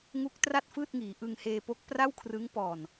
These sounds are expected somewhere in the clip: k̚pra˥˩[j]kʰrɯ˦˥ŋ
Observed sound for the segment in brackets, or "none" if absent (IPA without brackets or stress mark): w